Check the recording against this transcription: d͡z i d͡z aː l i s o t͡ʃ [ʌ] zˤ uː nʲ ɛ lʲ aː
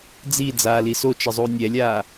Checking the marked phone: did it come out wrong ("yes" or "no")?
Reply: no